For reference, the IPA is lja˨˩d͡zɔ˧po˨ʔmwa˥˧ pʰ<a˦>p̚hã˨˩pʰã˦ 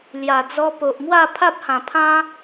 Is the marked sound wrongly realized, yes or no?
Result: no